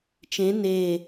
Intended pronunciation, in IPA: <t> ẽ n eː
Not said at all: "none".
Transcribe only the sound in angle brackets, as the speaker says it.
t͡ʃ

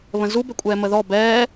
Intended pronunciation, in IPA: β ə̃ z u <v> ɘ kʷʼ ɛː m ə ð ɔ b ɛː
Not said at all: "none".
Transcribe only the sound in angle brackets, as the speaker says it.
b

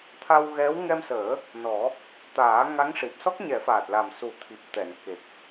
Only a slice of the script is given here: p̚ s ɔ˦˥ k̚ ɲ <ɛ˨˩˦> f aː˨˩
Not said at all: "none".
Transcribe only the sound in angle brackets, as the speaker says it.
ɛ˨˩˦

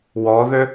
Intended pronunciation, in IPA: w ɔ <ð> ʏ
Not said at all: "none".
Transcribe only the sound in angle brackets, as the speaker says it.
ð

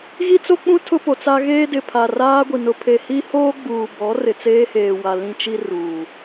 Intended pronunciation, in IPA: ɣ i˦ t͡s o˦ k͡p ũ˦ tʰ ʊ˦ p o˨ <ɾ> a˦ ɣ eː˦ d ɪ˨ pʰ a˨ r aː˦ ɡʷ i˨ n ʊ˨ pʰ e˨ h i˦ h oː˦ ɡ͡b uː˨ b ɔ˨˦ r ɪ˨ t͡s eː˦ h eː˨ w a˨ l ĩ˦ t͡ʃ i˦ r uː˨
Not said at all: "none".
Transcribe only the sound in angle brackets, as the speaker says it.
t͡s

